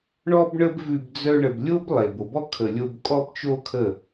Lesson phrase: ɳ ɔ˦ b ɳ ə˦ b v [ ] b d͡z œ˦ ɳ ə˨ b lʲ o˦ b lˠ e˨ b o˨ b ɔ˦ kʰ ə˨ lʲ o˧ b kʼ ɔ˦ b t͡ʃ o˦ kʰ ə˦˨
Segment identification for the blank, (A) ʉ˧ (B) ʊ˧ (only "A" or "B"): A